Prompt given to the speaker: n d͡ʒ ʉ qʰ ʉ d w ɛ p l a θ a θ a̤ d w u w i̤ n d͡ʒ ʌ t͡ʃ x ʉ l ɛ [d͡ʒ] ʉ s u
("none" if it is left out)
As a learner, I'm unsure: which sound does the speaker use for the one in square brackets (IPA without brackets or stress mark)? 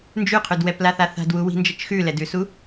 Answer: d